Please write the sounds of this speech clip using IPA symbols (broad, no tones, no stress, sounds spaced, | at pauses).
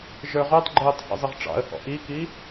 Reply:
ʒ ə˞ ʁ u tˤ ɡ͡ǃ ʊː tˤ h ḭ zˤ ɪ ʁ ʈ͡ʂ ɑ̰ ə̯ h ɔ̰ ʔ i k i